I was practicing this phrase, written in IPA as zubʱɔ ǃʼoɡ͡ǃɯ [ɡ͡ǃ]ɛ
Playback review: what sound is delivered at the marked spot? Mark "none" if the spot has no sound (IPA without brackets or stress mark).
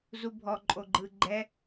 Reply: ɡ͡ǃ